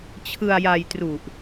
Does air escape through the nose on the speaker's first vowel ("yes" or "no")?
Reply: no